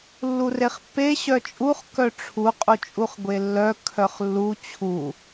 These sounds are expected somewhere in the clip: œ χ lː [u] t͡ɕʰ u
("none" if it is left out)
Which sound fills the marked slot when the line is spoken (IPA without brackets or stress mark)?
u